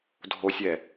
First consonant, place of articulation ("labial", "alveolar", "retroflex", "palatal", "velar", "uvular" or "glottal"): alveolar